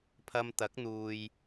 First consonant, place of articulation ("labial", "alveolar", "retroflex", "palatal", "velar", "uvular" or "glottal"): labial